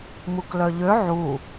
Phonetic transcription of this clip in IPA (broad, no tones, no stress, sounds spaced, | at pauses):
m u k l œ ʎ ø ʕ u